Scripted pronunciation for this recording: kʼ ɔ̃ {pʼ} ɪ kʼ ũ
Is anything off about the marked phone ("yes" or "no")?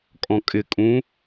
yes